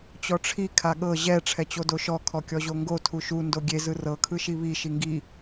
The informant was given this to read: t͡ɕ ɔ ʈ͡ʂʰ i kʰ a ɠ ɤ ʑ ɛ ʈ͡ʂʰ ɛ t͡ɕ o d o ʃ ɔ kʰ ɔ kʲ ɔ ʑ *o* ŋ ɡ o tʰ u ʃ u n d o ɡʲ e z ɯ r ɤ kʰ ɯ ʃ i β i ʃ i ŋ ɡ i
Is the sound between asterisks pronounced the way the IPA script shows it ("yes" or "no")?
yes